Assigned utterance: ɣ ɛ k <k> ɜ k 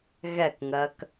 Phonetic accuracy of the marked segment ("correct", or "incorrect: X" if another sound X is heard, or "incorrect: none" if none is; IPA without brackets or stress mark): incorrect: ŋ